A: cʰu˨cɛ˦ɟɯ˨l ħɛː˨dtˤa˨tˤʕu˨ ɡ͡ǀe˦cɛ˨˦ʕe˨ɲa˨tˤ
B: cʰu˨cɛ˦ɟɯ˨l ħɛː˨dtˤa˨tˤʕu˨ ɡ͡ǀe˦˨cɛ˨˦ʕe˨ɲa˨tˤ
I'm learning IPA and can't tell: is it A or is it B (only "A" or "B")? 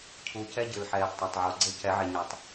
A